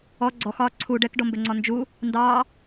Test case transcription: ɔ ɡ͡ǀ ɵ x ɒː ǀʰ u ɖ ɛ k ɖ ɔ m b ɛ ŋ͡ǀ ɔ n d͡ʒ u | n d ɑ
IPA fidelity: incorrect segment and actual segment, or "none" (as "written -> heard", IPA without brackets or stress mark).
ɵ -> ɔ